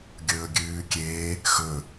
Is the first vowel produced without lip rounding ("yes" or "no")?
no